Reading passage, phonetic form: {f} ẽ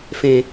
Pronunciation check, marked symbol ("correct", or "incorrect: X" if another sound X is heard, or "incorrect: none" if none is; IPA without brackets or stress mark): correct